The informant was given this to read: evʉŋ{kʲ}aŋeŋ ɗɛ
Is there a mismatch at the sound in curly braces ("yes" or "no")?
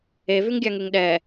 yes